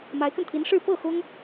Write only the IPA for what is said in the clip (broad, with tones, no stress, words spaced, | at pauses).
ma˧˥ɪ̯kə˧nt̪ʰi˧˥n ʂɻ̩˥˧ pɤ˥˩ xʊ˥ŋ